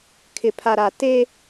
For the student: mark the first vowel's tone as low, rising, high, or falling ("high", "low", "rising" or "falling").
low